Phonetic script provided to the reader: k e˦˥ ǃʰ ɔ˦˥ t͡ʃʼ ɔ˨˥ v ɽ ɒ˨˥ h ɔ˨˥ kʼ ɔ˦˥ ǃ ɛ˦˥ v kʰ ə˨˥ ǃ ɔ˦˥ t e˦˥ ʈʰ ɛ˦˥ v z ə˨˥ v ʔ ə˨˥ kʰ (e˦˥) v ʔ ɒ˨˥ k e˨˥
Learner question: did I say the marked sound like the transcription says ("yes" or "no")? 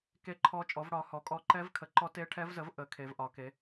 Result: no